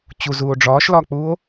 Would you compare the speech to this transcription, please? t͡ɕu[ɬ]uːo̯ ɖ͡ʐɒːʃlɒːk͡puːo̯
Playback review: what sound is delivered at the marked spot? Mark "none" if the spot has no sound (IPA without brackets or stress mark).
z